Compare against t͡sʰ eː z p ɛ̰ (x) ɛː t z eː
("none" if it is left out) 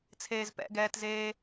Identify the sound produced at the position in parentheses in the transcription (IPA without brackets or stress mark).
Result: ɡ